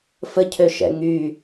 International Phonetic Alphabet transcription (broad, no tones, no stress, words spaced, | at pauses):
fəcʰøʃɛ̰ ŋy